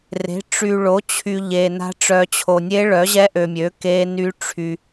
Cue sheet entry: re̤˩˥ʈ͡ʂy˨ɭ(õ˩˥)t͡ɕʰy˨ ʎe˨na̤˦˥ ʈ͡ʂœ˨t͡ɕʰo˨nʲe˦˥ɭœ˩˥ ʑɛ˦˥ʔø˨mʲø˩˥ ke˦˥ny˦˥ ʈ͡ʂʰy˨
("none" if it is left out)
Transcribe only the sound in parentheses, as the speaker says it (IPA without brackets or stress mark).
o˩˥